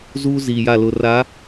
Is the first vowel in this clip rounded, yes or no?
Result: yes